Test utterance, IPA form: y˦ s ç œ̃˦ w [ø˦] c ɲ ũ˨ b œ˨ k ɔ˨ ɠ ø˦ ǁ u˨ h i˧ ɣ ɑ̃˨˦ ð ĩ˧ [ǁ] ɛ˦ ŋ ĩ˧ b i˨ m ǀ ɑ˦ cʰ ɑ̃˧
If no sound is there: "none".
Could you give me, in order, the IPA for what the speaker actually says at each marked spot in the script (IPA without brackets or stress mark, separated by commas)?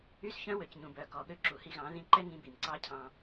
ø˨, ǃ